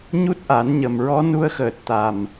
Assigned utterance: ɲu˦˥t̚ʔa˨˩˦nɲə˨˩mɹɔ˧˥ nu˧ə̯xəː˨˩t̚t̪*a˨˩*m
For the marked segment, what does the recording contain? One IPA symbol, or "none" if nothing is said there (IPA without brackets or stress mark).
a˨˩